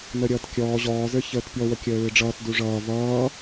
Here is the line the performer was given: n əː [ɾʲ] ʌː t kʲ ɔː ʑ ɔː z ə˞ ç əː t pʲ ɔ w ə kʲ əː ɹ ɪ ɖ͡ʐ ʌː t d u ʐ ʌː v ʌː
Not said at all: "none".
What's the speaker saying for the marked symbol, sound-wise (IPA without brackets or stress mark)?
ɾʲ